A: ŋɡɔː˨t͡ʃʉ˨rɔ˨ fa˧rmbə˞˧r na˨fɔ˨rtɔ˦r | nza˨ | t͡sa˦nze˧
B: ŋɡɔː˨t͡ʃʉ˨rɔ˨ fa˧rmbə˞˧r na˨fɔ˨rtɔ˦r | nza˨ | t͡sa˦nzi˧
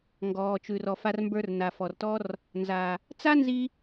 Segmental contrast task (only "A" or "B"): B